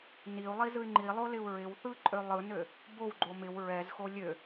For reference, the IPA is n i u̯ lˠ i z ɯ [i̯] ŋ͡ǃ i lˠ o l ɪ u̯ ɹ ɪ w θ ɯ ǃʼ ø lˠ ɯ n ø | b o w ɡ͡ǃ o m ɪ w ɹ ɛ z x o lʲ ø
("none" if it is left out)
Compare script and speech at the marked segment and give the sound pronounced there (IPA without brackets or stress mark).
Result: y̯